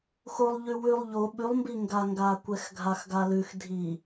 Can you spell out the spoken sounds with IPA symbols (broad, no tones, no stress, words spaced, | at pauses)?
xolˠ ʎʉwʉlˠ ʎo ɓʉlˠmbiŋɡaŋɡaː kʷɛxɡʱaxɡalʉx dʱi